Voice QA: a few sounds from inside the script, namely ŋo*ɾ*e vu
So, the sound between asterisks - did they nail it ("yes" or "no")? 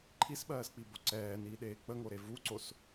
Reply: yes